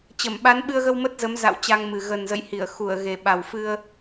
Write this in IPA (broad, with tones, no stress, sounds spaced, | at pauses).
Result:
t͡ɕ ə˧˩ m ɓ a˨˦ n ɓ ɨ˧ ə̯ ɣ ə˧ w m ə˦˥ t̚ z ə˨˦ m z a̰˧˨ w t͡ɕ a˧ ŋ m ɨ˨˩ ɣ ə˨˩ n z ə̰˧˨ j h i˧˩ ə̯ x u˧˩ ə̯ ɣ e˨˩ ɓ a˨˩ w f ɨ˧ ə̯